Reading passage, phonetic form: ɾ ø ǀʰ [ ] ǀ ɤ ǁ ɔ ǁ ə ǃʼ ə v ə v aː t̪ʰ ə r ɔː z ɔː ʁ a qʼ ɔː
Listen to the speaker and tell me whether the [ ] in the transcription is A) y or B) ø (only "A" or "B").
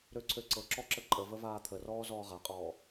B